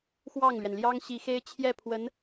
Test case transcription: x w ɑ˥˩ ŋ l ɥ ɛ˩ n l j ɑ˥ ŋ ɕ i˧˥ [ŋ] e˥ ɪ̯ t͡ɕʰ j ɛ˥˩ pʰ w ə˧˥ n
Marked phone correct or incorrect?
incorrect: x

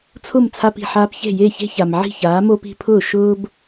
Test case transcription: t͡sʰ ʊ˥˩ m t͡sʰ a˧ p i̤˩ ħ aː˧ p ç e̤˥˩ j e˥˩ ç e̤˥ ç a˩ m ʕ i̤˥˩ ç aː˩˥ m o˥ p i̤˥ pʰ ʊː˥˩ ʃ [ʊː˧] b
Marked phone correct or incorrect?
incorrect: ʊː˥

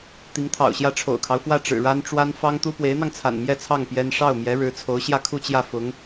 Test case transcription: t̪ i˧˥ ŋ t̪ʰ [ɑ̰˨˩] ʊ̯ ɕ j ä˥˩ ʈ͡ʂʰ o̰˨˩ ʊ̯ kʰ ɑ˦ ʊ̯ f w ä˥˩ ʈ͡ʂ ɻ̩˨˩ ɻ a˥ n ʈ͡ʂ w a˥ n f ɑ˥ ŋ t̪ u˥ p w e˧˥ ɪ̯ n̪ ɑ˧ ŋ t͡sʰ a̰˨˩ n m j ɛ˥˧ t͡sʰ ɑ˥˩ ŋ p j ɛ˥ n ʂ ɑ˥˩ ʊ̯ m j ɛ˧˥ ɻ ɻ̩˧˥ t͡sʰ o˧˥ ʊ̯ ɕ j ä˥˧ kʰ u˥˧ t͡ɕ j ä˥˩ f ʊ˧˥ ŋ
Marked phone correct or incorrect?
correct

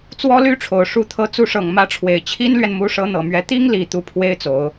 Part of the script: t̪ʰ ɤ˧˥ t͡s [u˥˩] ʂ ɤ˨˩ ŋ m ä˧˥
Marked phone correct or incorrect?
incorrect: u˧˥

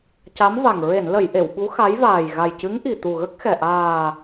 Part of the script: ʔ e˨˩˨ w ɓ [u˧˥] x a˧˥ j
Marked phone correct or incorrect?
correct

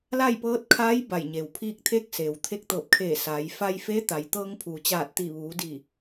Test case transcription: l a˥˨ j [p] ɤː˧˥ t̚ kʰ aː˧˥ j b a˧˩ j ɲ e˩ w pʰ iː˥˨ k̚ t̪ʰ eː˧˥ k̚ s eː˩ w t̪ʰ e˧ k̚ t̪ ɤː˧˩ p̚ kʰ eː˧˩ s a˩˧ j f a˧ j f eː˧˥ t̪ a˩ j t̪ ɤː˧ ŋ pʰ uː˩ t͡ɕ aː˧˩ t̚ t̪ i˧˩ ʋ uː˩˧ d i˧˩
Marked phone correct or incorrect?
correct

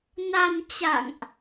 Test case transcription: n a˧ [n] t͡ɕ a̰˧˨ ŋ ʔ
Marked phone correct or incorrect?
correct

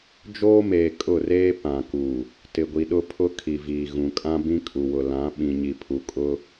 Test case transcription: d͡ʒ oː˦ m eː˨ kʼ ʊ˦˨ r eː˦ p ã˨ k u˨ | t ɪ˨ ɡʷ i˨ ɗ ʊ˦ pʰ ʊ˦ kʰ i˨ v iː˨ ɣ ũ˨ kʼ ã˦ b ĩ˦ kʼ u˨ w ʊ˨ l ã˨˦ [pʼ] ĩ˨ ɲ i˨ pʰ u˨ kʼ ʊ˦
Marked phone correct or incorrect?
incorrect: ɓ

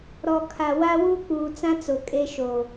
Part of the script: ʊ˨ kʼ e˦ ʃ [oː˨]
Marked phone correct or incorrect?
correct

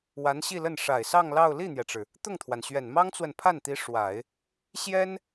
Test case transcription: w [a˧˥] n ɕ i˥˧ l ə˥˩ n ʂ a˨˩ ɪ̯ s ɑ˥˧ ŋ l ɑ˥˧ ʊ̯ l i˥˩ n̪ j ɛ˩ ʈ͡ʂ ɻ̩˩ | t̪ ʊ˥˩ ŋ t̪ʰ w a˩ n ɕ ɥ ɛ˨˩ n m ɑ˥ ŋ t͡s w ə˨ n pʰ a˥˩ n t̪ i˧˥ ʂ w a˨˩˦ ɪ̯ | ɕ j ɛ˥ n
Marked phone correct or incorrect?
correct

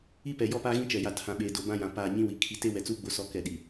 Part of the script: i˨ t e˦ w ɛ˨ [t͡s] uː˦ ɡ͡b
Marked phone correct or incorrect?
correct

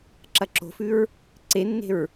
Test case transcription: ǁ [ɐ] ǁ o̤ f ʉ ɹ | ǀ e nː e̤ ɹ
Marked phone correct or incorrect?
correct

